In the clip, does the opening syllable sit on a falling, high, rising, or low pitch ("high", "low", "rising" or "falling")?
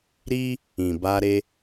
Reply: high